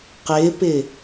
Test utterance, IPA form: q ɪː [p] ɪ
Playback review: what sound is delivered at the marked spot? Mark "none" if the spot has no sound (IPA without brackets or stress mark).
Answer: p